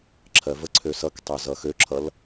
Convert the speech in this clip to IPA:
ǁʰɜvəǀʰø sʌktˤø zʌxøǁʰʌl

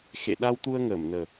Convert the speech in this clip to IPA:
xḛ˧˨ ɗa˧wt̪u˧ə̯ŋəː˧˩mnəː˨˩

